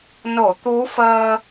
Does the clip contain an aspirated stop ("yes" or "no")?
no